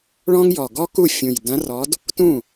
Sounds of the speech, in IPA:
ɭɔ̃˥ŋjɔ˨˩ ɡɔ˥ku˥˩ fʲũ˨˩j dɐ̃˧˥rɔ˧˥d | tũ˥˩

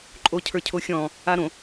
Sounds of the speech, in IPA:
ǃʼocʰə˞cʰoxʲɔ̃ː | aɾõ

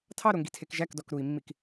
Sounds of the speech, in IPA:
tʰɑɾoŋɡitʰek ʒækdɔk ɾui̯mːik

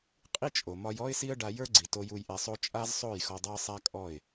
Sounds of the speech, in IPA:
qʼi˦ t͡ʃʼo˨ mɒ˧j ɔ˦ɪ̯si˦ə̯ ɖa˧jə˞˦ɡ͡ǀi˨ to˦ju˦j ʔɛ˧sˤo˦ t͡ʃʼa˦zsˤo˦˨j xɔ˧dˤa˦ə̯sˤa˦kʼɔ˦˨ɪ̯

